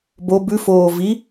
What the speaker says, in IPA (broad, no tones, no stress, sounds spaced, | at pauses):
b o b ʉ f oː v i